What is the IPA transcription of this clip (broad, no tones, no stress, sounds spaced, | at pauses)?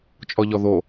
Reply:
t͡ʃʼ ɔ ʎ ɔ ð o